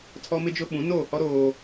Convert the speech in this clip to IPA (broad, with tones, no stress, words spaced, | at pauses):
tʰɔ˦mɪ˦d͡ʒʊ˦ ɓũ˨˦noː˦˨hɔ˦ ɾoː˦